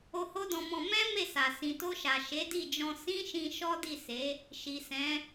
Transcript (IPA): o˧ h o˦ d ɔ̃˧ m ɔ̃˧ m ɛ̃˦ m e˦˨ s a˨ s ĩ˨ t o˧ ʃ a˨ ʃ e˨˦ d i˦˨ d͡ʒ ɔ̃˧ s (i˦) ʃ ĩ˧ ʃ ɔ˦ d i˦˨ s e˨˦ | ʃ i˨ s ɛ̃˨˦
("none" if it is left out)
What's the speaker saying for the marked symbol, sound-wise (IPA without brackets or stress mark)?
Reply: ĩ˦